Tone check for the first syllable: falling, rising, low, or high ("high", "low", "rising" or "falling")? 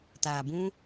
low